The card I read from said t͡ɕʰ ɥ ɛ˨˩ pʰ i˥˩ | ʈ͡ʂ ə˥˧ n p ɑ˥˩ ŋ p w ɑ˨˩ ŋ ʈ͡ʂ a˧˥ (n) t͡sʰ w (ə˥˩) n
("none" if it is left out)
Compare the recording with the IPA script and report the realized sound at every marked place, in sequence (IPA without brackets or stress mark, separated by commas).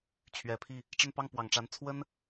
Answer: n, ə˥